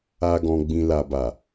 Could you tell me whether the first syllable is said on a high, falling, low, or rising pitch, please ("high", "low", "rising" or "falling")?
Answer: low